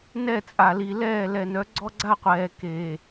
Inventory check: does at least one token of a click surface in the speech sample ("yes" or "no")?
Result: yes